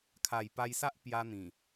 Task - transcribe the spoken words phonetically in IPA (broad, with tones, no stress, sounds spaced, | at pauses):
kʰ a˨˩ j p a˧ j s a˦ ʔ p j a˧ n̪ ĩ˨˩